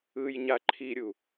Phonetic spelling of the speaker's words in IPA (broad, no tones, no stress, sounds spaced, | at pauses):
ɯ j ɲ a ǃʰ i ɾʲ u